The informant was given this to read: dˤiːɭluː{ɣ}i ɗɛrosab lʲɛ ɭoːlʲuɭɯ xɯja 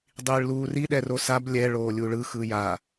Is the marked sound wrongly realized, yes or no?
yes